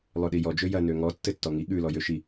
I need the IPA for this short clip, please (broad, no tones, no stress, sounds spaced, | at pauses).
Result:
lˠ ø ɗ i j ɔ d͡ʒ ø j ɐ n ø ŋ ɔ tː ɘ tː ɔ ŋ i ɠ ʉ l ɔ j ø ʃ i